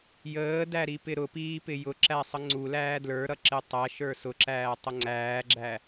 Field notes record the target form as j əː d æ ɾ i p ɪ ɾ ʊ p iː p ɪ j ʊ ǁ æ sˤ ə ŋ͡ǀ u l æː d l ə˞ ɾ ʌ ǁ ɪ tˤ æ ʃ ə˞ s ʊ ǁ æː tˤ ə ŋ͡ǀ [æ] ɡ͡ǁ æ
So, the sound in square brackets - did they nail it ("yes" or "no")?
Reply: no